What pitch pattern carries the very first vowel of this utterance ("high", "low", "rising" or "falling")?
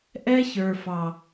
high